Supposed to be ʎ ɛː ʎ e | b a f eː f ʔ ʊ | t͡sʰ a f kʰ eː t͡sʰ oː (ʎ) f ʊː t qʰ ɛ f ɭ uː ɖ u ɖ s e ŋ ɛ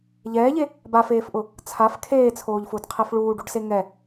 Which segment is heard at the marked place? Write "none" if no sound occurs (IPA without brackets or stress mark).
ʎ